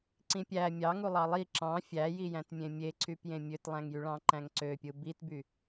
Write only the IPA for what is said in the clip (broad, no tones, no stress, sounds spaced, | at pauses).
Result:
ǀ ĩ pʲ æ mʲ ɑ ŋ u lˠ ɑ lˠ i ǁ ɑ̃ fʲ æ j i j æ̃ t mʲ ẽ mʲ e ǀ y p j ẽ mʲ ø t lˠ æ̃ ŋ j y ɭ ɑ̃ ǃ æ̃ ŋ ǀ ø pʲ ɯ b i t b y